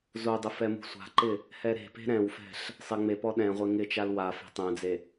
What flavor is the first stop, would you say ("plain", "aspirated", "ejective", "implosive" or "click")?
plain